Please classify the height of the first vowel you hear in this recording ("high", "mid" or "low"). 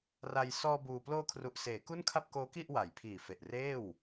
low